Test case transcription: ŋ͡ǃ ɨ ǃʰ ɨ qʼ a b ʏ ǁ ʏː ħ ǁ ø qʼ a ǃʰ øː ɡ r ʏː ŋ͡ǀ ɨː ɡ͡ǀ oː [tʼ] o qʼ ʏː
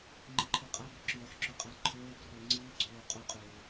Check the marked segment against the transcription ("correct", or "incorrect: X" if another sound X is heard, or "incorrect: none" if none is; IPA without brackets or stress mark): incorrect: qʼ